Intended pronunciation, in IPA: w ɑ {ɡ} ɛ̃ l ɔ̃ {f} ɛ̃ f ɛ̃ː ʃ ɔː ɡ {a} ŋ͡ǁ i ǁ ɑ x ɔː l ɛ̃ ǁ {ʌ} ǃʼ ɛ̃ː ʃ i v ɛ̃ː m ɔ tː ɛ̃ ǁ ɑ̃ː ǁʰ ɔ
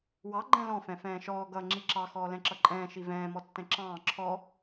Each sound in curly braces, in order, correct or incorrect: incorrect: ɡ͡ǃ, correct, incorrect: ʌ, correct

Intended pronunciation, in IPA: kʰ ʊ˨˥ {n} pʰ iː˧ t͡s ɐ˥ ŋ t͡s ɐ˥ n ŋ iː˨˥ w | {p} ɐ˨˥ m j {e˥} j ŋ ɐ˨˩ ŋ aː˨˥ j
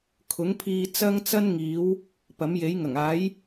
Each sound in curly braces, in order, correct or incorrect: incorrect: ŋ, correct, incorrect: e˨˥

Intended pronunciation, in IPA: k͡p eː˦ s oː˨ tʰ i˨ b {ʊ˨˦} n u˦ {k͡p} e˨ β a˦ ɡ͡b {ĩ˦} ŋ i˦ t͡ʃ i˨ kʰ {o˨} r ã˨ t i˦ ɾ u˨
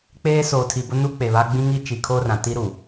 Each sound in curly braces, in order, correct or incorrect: incorrect: ʊ˦, correct, correct, incorrect: o˦

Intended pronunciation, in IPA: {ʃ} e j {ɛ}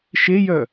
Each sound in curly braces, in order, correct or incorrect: correct, incorrect: œ

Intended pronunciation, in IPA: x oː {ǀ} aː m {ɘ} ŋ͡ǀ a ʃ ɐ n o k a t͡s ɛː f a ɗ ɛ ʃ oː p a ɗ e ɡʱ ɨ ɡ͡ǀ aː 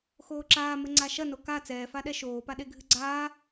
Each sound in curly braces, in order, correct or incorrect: incorrect: ǁ, correct

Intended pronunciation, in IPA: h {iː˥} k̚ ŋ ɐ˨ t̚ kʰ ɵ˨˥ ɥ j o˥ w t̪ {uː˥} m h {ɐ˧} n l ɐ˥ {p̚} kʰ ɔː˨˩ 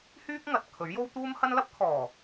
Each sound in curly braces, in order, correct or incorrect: incorrect: yː˥, correct, incorrect: ɐ˥, correct

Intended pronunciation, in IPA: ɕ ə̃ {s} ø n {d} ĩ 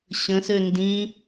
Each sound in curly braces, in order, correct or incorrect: correct, correct

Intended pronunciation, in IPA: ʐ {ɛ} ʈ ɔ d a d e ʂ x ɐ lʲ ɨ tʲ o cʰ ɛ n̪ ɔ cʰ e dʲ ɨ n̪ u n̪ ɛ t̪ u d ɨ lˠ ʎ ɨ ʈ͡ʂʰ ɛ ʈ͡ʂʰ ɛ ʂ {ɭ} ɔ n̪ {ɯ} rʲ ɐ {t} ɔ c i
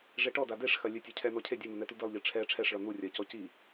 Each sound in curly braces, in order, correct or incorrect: incorrect: e, correct, incorrect: u, incorrect: c

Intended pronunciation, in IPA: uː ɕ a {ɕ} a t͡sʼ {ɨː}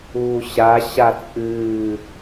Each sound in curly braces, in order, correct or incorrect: correct, correct

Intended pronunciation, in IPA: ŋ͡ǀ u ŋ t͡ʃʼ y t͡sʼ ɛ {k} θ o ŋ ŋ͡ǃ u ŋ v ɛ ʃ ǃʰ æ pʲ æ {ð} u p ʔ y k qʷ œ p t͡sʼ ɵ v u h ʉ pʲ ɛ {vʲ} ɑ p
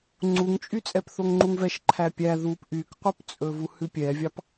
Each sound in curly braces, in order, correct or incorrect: incorrect: p, correct, correct

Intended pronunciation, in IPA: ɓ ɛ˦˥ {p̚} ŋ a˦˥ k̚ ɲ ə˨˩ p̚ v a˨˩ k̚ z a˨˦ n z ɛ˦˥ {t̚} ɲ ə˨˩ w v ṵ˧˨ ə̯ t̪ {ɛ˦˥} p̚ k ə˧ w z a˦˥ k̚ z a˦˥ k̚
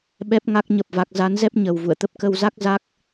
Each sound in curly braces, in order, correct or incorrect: correct, incorrect: p̚, incorrect: ə˦˥

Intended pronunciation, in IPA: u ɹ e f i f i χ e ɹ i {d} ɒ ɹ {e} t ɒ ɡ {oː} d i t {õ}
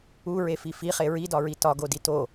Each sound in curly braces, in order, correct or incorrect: correct, incorrect: i, incorrect: o, incorrect: o

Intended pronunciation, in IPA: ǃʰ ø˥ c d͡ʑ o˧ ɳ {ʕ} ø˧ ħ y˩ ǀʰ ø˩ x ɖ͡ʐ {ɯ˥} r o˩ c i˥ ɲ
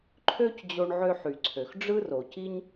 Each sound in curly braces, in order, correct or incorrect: correct, correct

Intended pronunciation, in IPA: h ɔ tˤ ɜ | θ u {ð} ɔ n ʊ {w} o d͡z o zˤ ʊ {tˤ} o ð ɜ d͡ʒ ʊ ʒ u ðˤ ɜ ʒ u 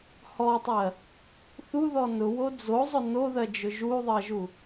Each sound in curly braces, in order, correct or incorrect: correct, correct, incorrect: n

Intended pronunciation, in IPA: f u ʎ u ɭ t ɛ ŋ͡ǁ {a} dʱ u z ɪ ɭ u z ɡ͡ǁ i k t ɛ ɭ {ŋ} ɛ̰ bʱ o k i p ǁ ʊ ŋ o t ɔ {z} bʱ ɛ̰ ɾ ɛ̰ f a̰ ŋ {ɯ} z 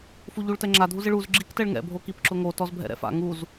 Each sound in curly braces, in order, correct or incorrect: correct, correct, correct, incorrect: u

